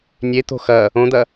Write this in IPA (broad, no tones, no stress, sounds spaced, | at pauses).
nʲ e t̪ o̤ x ɐ | õ d̪ ɐ